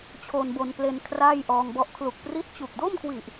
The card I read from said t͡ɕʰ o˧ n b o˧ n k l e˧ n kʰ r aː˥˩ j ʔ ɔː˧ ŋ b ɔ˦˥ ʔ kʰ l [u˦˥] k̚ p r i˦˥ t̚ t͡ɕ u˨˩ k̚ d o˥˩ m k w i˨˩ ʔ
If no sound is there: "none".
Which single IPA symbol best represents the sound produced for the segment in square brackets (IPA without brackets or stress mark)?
u˨˩